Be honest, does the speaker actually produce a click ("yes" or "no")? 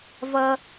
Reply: no